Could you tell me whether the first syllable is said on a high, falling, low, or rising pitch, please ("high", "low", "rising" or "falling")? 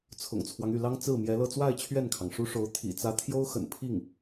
low